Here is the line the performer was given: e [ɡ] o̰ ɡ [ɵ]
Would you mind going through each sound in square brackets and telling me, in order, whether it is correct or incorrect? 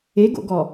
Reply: correct, incorrect

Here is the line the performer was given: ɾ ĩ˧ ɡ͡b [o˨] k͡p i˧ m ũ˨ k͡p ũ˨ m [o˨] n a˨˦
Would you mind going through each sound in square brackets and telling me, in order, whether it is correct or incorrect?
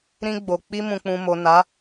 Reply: correct, correct

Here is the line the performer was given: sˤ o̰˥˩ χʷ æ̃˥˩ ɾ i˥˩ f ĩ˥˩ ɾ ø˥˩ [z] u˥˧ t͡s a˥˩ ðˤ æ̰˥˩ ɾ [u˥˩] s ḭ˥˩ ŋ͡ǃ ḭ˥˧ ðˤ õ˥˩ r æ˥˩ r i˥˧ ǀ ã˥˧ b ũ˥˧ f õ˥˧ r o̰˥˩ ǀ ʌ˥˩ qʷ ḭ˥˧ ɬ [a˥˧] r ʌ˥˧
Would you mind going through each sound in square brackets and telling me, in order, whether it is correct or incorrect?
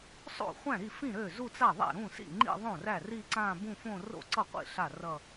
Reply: correct, incorrect, incorrect

